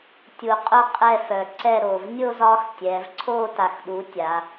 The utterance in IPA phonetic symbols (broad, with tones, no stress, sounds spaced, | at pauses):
tʲ u˨˩ qʼ ʊ˦˨ qʼ ɛ˦˨ f œ˨˩ ǀ ɛ˦˨ ɾ o˨˩ v nʲ o˦ z ɒ˦ x tʲ ɛ˩˧ v ǀʰ o˦˨ t a˨˩ x ɗ u˩˧ tʲ a˩˧